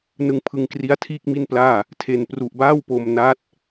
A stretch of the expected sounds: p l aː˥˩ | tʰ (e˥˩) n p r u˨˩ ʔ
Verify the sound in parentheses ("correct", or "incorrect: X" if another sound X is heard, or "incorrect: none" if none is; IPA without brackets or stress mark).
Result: incorrect: e˨˩